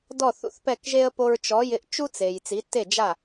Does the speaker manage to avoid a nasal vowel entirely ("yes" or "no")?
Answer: yes